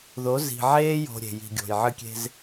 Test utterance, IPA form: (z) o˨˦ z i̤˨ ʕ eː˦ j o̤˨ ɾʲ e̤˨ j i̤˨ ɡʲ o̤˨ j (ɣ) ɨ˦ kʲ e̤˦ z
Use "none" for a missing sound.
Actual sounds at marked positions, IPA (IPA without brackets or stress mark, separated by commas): ð, ʕ